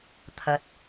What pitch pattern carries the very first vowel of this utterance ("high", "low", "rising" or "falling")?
low